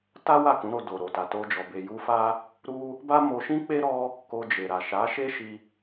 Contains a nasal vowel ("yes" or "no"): yes